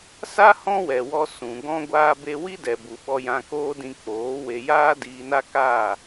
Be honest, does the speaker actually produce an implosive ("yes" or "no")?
yes